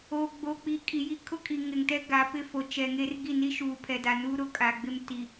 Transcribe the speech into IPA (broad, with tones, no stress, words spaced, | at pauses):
o˨ ɡ͡bo˨k͡pi˨ kʼi˨ji˦ kʰʊ˦kʼi˨ ŋɪ˨ŋtɛ˦ ɡa˨˦ pɪ˦fo˨ t͡ʃɛ˨ŋe˦r ɡi˦˨ni˦ ʃuː˨pʰɛ˨da˨nuː˦ ɾʊ˨kʼa˨ɡ͡bɪ˦m ti˨